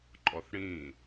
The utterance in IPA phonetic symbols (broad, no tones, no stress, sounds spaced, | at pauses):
ǃʼ ɔ θ ɽ ĩ